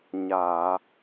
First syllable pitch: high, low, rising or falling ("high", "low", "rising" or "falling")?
low